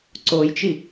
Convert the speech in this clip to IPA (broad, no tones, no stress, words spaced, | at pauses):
ǀojt͡ʃi